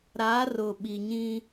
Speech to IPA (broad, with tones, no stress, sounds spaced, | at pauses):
ɾ a˨˦ r ʊ˨ ɓ i˨ ɲ ĩ˦